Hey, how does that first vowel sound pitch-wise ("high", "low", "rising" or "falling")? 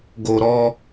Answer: low